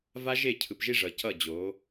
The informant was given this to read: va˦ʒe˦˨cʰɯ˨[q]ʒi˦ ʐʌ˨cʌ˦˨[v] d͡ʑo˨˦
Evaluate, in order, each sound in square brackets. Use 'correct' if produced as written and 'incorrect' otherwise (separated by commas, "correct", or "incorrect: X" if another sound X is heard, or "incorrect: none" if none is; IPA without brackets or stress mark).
incorrect: p, incorrect: none